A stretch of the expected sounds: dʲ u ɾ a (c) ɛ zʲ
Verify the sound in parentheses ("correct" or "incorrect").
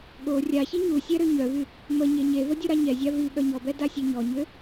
incorrect